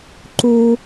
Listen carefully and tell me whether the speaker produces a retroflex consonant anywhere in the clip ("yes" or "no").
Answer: no